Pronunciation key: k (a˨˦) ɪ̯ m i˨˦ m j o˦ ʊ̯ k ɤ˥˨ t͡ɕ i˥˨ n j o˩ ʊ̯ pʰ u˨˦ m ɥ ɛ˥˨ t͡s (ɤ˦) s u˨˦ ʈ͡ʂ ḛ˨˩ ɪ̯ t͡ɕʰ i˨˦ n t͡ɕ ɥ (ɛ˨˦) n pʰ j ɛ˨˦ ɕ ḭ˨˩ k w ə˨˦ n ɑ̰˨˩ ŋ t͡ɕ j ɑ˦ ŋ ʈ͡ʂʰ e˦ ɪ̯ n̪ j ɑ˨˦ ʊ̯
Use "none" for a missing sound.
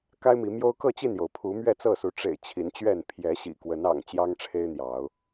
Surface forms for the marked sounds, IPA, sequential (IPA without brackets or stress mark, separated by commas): a˦, ɤ˥˨, ɛ˥˨